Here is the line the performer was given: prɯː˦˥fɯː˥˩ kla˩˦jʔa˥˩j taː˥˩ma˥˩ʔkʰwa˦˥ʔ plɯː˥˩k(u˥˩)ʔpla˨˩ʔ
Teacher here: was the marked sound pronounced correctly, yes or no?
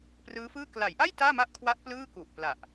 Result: no